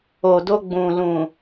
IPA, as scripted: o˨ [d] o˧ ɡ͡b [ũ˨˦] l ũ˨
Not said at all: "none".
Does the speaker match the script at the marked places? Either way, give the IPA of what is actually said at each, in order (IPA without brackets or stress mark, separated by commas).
d, ũ˨